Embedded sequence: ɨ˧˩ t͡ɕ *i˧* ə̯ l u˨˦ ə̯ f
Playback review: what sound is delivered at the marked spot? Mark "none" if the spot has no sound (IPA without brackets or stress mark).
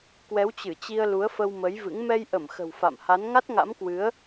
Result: i˧